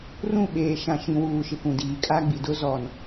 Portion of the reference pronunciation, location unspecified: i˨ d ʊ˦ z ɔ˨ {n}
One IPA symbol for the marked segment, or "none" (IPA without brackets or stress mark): n